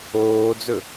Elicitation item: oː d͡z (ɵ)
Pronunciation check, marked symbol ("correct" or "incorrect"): correct